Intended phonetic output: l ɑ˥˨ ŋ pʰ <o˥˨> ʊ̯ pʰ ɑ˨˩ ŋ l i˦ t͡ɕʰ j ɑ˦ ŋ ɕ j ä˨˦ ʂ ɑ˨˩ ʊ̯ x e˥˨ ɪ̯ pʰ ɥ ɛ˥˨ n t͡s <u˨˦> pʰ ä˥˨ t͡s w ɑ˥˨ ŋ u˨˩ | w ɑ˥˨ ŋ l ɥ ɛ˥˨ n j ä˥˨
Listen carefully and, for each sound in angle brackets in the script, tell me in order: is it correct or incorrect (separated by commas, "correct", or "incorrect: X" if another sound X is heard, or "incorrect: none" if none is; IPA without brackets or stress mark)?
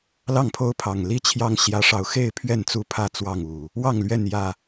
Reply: incorrect: o˦, incorrect: u˥˨